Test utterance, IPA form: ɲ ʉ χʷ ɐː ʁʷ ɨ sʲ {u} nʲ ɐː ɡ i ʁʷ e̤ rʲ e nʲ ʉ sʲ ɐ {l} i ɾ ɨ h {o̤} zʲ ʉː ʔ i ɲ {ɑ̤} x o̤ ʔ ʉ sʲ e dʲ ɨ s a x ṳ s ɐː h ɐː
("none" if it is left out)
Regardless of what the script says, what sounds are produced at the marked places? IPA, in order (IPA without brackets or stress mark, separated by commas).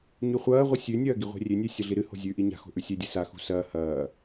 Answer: ʉ, ɮ, o̤, a̤